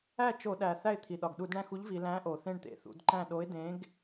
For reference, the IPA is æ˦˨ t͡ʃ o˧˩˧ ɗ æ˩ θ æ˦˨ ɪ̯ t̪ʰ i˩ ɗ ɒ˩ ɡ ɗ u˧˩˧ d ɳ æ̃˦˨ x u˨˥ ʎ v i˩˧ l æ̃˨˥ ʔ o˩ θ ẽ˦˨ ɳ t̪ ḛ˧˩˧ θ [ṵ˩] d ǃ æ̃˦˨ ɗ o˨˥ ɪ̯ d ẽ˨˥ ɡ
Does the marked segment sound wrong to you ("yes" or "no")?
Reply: yes